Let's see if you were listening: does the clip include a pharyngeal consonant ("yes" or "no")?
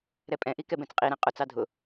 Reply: no